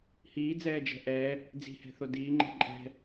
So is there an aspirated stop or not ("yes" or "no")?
no